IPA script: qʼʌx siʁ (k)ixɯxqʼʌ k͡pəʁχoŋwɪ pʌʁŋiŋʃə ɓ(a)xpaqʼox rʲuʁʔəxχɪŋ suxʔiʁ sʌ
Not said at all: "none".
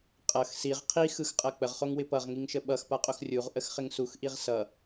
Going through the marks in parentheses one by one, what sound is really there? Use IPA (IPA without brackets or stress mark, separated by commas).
qʰ, ʌ